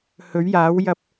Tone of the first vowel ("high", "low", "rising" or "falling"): rising